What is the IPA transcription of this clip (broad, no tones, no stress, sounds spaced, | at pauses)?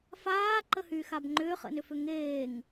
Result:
f aː ǃ ə h y x a b ŋ͡ǃ ʏː χ ə̰ n ʏ f ʏ ŋ eː ŋ